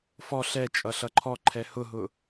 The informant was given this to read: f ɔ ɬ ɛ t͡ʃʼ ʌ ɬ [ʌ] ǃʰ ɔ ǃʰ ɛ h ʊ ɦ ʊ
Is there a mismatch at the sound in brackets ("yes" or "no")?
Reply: no